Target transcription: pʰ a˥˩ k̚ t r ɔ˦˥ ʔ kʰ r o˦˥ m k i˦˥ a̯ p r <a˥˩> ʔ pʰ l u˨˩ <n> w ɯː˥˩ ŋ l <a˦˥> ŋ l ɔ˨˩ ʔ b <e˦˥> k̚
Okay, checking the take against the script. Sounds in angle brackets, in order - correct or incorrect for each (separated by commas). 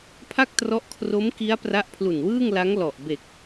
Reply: incorrect, correct, correct, incorrect